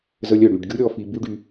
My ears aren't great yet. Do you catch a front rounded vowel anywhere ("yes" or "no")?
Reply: yes